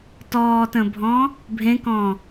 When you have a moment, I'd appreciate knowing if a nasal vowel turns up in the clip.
yes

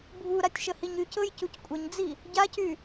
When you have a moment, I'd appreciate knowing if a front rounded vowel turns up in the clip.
yes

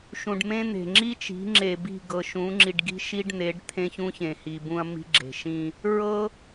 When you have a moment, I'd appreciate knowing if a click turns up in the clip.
yes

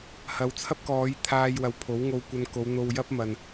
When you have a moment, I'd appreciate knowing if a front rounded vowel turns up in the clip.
no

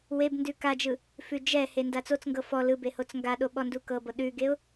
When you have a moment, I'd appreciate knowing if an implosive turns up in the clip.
yes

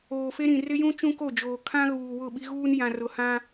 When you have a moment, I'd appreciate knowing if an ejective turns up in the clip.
no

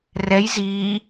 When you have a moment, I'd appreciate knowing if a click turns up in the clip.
no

